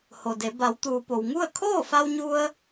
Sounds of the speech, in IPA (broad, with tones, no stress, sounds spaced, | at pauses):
h o˩ d e˩˧ b a˩˧ w t̪ uː˩ p o˩ w ŋ u˥˨ ə̯ kʰ oː˥˨ f a˧ w ɲ u˧ ə̯